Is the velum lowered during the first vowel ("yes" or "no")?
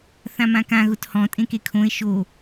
yes